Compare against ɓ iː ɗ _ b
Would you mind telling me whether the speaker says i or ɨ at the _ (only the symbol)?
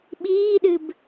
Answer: ɨ